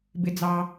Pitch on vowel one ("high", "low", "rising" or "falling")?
low